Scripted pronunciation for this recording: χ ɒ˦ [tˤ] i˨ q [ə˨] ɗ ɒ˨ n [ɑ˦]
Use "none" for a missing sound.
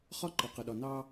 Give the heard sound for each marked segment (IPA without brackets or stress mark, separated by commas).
ǃ, ə˨, ɑ˦